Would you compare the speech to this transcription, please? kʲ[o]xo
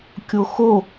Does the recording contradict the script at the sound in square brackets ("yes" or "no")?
no